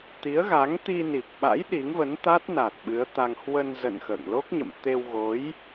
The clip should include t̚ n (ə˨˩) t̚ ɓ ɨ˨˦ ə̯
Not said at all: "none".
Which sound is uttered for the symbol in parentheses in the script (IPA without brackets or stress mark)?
a˨˩